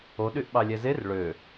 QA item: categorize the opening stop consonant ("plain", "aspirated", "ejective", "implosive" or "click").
implosive